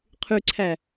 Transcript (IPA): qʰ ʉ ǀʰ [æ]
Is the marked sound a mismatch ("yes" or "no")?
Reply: no